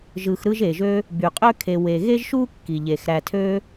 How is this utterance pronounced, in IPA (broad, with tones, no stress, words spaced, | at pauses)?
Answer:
ʒɯ˨xɾɯ˦ʒe˩ʒø˦ | by˩qʼø˥kʰe˨ we˩ɣe˥ʒʃu˥ kːi˩ʎe˩xɾæ˨tʰø˦